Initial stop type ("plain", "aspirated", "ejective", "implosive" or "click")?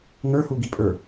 plain